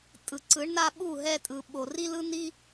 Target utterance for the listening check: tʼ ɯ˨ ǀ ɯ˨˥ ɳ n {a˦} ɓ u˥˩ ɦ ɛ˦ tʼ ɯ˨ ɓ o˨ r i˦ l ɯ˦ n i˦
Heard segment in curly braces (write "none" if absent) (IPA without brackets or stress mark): a˦